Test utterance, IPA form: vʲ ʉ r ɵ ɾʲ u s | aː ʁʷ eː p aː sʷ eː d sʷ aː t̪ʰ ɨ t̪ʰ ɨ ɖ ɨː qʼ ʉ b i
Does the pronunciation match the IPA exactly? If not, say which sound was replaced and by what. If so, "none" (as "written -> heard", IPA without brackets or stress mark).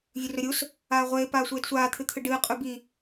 none